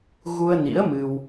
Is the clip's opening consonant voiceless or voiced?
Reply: voiced